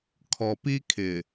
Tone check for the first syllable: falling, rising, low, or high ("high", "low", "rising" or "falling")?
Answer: low